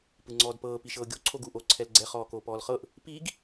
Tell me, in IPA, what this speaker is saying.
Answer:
p ɯ ŋ͡ǀ ɔː d p ɤː p i ʃ ɤː ɡʲ o ǀʰ o ɡ uː ʔ o ǀʰ ɛ l ɡ͡ǀ ɛ χ ɔː k oː p ɔː l χ ɤ ʔ | p i ɡ

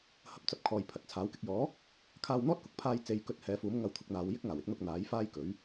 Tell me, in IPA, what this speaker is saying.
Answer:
h ɐ˧ p̚ t͡s ɐ˨˥ p̚ kʰ ɔː˨ j pʰ ɐ˨ t̚ t͡sʰ aː˨˥ w k ɪ˧ k̚ j ɔː˨˥ | kʰ aː˧ w n̪ ɔː˥ t̚ k ʊ˨ k̚ pʰ aː˧ j t͡s e˨˧ j k ɵ˧ t̚ h ɛː˨˧ f uː˨˥ m ŋ ɐ˧ w t̪ʰ ʊ˧ k̚ n̪ aː˨˧ w j ɪ˥ k̚ ŋ aː˨˩ w ɪ˨˥ k̚ n̪ ʊ˧ k̚ n̪ aː˨˥ j f aː˥ j k ɵ˨˥ ɥ

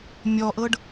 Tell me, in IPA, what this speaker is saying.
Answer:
mʲ ɔ ʔ ɤ ɖ

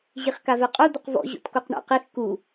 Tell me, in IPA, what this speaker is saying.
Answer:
ʑ i χ k a v ɛ qʼ o d̪ ʊ q v ɔ̰ ʑ o̰ t k o q ɳ a̰ q i x k u

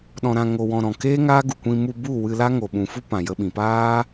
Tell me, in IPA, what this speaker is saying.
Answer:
ɗ ɔ̃˧ ɾ ã˧ ŋ o˧ w ɔ̃˧ ɾ ɔ̃˨ k eː˦ ŋ aː˦ ɡ u˨ kʷ ĩ˧ m u˧ b u˦˨ w ɨ˧ l a˦ ŋ o˨ ɓ ũ˨ f u˦ p ã˨ j ə˧ ɓ ĩ˨ p aː˦

